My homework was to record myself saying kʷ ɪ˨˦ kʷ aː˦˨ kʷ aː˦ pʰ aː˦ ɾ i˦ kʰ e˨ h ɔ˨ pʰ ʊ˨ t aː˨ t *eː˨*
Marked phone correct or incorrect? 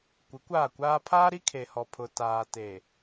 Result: correct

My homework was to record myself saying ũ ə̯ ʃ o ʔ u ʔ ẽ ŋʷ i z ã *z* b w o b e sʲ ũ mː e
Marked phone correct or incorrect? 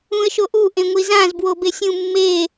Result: correct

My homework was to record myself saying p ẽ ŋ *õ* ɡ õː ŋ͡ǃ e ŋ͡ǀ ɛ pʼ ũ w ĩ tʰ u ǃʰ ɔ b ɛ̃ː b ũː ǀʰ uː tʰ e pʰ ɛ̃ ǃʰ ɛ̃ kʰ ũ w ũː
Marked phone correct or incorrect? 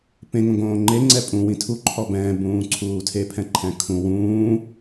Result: correct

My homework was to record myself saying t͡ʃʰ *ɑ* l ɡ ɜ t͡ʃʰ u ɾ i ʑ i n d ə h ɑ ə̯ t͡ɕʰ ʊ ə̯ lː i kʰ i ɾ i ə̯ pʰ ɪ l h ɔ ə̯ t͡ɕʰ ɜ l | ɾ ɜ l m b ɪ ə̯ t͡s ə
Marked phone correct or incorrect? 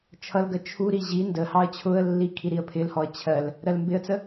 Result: incorrect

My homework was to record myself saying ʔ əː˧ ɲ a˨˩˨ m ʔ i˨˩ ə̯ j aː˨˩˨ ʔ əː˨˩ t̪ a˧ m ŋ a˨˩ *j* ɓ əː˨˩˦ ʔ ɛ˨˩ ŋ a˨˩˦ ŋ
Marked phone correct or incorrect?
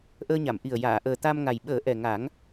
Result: correct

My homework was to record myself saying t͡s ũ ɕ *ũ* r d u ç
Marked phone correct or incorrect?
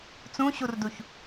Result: incorrect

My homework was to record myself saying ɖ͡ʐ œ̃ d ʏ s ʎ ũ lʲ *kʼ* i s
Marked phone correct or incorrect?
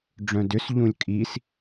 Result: correct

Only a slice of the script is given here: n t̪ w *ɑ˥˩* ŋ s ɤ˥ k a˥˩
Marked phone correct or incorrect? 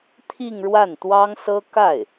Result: incorrect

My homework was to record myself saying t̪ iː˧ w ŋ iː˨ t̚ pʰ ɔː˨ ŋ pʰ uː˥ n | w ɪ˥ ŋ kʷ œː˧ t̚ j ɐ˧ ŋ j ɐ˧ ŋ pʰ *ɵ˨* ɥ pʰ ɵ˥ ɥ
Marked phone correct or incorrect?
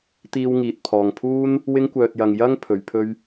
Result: incorrect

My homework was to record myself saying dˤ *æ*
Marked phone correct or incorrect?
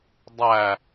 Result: correct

